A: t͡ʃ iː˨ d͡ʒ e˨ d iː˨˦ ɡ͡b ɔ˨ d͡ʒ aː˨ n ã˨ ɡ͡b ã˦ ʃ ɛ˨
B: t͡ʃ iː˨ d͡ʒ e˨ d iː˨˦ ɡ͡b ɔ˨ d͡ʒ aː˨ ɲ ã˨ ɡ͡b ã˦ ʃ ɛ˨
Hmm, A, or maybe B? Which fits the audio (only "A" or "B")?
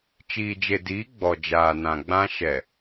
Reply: A